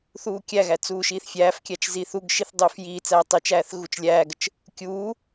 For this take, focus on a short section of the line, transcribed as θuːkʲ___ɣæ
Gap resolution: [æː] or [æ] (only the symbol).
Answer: æ